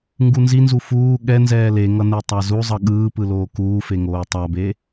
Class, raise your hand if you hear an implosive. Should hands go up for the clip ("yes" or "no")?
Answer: yes